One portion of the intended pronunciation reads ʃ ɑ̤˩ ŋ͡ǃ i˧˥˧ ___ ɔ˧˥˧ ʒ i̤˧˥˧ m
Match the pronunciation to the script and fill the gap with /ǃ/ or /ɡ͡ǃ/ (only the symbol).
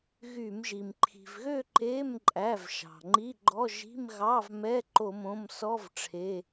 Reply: ɡ͡ǃ